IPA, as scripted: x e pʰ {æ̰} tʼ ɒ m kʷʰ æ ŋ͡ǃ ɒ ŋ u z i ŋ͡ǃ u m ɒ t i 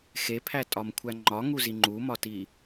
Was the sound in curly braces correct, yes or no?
no